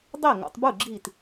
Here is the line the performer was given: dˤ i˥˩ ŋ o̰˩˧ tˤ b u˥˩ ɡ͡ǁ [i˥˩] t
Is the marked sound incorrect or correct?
incorrect